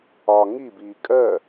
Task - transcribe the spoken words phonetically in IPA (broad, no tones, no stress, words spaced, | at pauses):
ɒ ŋibiː kʼɜ